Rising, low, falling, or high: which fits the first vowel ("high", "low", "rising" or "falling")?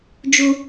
high